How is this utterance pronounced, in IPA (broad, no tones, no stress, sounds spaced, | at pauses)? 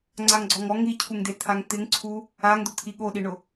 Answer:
ŋ͡ǀ a ŋ ɡ͡ǀ ɔ ŋ ɔ ŋ i cʰ u ŋ d e t̪ʰ a ŋ t̪ ɪ ŋ ǀʰ u | a ŋ d̪ ʊ t̪ʰ i ɠ o ɗ i ɳ ʊ